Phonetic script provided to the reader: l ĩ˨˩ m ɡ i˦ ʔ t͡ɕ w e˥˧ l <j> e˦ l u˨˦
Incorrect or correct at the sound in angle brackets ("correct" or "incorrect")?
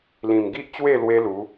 incorrect